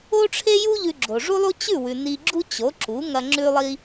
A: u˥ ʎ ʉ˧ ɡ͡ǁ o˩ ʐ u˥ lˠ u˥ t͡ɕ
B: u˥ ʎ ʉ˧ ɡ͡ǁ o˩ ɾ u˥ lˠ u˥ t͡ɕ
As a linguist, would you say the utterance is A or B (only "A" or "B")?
A